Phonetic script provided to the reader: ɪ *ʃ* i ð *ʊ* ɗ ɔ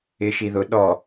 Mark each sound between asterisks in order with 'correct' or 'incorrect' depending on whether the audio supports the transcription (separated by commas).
correct, correct